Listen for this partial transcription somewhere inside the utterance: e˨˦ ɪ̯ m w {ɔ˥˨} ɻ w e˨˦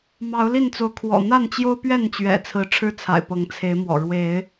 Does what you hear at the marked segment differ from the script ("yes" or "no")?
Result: yes